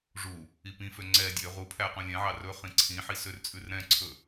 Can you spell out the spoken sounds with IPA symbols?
ʐu | ipĩfø ŋ͡ǀɛ dʲø ʁupʰæ qũlʲɛ̃ʕɑ rɵχĩ ǀʰĩħi sørt͡sʼʉrɾɛ̃ǀʰɵ

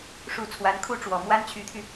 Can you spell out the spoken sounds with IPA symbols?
ʂu˨˩ t͡sʰwa˧˥nkʰu˥ʈ͡ʂwɔ˨˩ mwa˥nt͡ɕʰy˧˥t̪ʰy˧

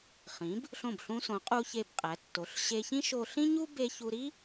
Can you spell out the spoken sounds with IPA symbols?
χĩ˩˧b | ɬõ˧˩bɬũ˧sõ˩˧ qʼu˧çe˧˩bqʼæ˩˧tːo˩˧ɬ ɕe˧çĩ˥ ʃo˧ɬĩ˥ɲu˥ be˧çu˧ɾi˥

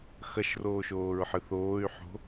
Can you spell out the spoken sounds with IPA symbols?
xɐʃroːʃoːɹħɨ θoːy̯ħo̤

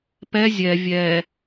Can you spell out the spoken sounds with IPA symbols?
pɛ zʲɛ vʲɛ

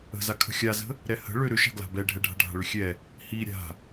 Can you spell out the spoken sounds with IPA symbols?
ə̤zakʰə̤ xʲazə̤ | ɾɛhə̤ ɭʏ ɾʏʃa̤ɡla̤ bɛɖʱɛɖʱa̤ ɖʱa̤ɭʏxʲɛ | hi ɾʲa̤

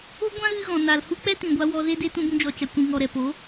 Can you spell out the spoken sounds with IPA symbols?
o˦ɡʷã˦ ɣɨ˦ɣɔ̃˨ na˨lhu˦ k͡pɛ˦tĩ˨ɡʷa˧ wɔ˧ze˦de˦ tũ˧bũ˧d͡ʒɔ˨ t͡ʃa˨ kʷĩ˨ŋɔ˨ ɾɛ˨po˨˦

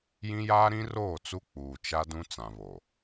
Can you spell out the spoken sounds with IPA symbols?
jĩ˦jaː˦ ɾĩ˦roː˦˨t͡su˦ k͡puː˨t͡ʃa˦ dũ˦t͡sã˨βo˨

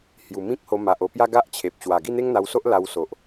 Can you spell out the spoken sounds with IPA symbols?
hju˨˩mĩ˦k̚ho˧ ma˨ʔo˧pja˦ ɡa˦ʔt͡ɕʰe˨p̚ ɕwa˨˩ ɡi˥˧n̪e˦ŋn̪a˧wso˦ʔ la˧wso˨ʔ

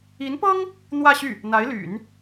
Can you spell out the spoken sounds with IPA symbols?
i˧˥npɤ˥ŋ | n̪wä˥˧ ɕy˥˩ | n̪a˧˥ɪ̯ly̰˨˩˦n

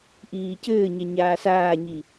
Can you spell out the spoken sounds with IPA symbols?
ʔiːcɘːɲɛ ɲaːsaːɲi

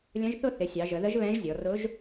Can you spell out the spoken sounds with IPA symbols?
lʲə̃˧˥ʒθʊ˥˧ θɪ˩˧sʲɑ˩˧ʒə˩˧ðə˧˥ʒ βɛ̃˧˥ʒ zʲɔ˩˧ rʊ˧˥ʒ

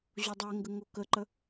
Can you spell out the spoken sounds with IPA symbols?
ʑodˤɛŋɡə ŋokəǃə

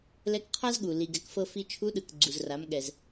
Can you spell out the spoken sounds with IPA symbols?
lɛ˧˥kqʰa˥zɠu˩ li˩ɡɛ˩˧kfɤ˧ fi˧t͡ʃʰu˧˥ɗɯ˩k ɡ͡ǀu˩zra˩˧mɠɛ˩z

